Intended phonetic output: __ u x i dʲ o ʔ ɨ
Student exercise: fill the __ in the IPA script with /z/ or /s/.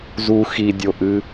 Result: z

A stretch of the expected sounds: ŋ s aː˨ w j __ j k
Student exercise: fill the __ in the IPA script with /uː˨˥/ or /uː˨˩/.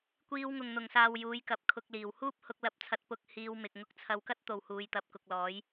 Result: uː˨˥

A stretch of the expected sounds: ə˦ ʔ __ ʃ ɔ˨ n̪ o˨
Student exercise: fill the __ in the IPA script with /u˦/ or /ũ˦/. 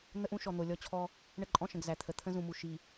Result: ũ˦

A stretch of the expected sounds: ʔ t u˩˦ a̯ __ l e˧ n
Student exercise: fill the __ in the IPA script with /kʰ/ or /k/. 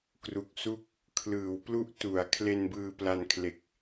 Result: kʰ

